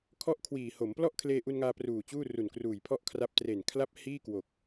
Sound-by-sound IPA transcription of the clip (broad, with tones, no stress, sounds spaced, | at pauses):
kʰ ɔ˥˩ ʔ kʰ w iː˨˩ h o˩˦ m p l ɔ˥˩ ʔ kʰ l eː˧ ʔ u˧ n ŋ aː˧ p r uː˨˩ t͡ɕ uː˥˩ r u˨˩ n k r uː˨˩ j pʰ ɔ˥˩ ʔ kʰ r a˦˥ p̚ t r e˨˩ n kʰ l a˥˩ p̚ h iː˥˩ k w o˨˩ k̚